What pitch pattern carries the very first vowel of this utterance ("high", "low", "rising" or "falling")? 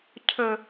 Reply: low